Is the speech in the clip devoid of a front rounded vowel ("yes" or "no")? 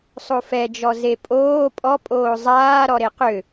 no